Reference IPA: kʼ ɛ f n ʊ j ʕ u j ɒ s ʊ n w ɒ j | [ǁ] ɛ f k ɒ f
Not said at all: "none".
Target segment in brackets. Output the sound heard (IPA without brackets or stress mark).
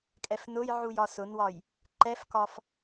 ǃ